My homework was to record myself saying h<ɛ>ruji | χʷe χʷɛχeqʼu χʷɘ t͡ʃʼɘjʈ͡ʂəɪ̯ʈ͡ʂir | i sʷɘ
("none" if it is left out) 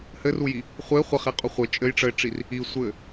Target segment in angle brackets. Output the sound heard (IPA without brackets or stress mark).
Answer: ɘ